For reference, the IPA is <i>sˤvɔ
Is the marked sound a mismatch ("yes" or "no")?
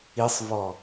no